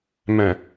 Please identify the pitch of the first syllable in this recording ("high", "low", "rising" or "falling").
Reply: low